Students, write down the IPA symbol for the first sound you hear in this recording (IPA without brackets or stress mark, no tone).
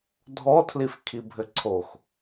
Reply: dʱ